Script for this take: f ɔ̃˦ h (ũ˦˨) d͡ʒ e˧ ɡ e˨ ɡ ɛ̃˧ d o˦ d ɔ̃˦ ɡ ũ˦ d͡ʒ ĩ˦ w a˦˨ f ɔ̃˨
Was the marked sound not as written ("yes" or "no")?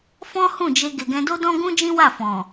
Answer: no